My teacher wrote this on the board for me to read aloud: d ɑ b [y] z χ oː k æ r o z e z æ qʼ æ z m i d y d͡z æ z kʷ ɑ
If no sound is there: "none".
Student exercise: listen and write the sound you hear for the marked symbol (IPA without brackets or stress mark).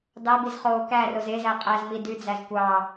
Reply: i